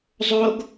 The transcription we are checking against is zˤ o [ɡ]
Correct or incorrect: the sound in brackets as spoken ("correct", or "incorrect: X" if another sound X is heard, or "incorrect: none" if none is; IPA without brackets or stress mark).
correct